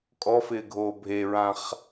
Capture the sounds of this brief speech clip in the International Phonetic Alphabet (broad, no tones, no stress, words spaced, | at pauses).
kʼɔfɪːɡʱoː bʱeɹãχ